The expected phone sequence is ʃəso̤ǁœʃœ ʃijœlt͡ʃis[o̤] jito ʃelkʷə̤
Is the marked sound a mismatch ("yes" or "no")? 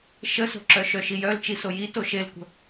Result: yes